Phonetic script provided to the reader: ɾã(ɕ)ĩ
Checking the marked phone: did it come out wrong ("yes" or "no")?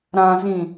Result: yes